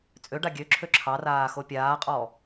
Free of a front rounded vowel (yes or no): no